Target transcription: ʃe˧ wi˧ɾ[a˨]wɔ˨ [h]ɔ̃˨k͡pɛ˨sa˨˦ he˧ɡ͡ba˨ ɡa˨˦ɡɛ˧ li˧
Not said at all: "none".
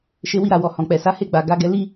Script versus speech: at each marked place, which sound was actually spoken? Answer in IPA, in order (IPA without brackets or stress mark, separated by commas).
a˨, h